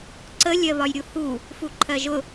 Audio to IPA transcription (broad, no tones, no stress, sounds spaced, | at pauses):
ǀ ə lʲ ɜ β ɒ j ɾʲ u h u | f u ǃʰ ɜ ʒ ʊ